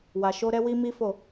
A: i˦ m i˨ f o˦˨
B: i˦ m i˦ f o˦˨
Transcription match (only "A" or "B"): B